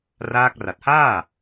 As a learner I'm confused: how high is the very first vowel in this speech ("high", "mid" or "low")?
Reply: low